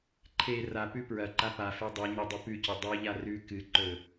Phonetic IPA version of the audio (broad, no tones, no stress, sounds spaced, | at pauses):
ǃʰ e r a p ʉ p ɹ ɐ ǃ a p a f e dˤ e ɲ o dˤ ɨ p ʉ c ɵ dˤ ʉ ʎ a r ʉ k ɨ ǃ ɵ